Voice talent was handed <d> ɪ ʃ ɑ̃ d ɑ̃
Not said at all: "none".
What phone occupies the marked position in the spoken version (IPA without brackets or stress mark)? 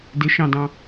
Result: d